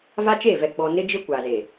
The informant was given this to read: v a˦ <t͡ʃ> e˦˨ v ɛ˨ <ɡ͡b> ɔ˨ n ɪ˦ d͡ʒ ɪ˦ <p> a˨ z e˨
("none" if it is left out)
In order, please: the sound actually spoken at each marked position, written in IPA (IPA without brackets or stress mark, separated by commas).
t͡ʃ, ɡ͡b, kʷ